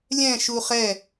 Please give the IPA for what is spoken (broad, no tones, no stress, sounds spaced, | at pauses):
lʲ ɛ̃ ʃ u χ ɛ